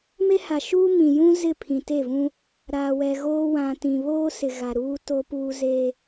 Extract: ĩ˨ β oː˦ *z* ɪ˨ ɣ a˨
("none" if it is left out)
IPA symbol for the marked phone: s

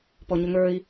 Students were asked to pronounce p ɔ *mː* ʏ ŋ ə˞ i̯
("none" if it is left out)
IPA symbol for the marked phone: ɲ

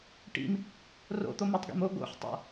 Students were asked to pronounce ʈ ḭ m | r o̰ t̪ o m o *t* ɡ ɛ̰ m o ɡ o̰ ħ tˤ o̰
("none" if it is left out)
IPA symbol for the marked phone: tˤ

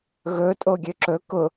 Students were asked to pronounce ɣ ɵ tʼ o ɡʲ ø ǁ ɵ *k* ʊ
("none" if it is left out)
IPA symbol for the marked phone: k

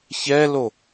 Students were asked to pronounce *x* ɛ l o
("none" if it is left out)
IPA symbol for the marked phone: ç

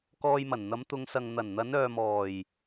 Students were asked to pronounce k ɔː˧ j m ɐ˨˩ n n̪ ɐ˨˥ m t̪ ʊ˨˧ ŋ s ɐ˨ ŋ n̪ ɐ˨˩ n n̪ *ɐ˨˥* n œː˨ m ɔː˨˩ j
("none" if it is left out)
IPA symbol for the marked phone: ɐ˨˥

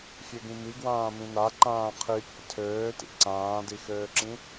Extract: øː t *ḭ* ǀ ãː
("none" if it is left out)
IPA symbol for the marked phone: ḭ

